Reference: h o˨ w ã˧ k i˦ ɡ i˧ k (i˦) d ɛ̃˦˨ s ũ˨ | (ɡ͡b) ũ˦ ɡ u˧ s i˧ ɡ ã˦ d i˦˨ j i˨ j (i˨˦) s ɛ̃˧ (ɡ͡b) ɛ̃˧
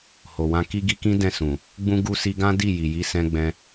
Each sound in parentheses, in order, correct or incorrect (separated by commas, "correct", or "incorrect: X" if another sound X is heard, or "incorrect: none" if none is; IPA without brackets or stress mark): incorrect: ĩ˦, correct, correct, correct